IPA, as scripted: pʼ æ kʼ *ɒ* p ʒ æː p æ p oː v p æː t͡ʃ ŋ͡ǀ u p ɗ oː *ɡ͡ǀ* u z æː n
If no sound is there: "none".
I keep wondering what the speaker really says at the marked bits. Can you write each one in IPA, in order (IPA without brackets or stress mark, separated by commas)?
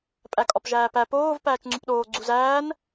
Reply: ɒ, ɡ͡ǀ